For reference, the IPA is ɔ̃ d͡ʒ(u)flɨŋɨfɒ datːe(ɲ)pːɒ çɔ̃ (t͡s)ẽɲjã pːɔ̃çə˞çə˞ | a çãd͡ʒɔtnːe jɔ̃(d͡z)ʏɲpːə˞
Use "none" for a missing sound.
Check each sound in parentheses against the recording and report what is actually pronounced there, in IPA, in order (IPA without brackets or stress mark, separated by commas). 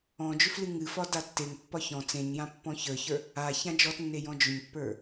ʏ, ŋ, t͡s, d͡ʒ